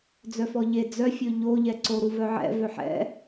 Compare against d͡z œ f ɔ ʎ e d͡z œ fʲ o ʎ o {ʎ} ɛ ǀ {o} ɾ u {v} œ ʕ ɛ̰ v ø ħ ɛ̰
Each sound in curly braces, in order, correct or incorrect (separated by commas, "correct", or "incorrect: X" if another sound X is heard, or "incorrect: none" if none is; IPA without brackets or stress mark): correct, correct, correct